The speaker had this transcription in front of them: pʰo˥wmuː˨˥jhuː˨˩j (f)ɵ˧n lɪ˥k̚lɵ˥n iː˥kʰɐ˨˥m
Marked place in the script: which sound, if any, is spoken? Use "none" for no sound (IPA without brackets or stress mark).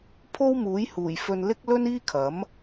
f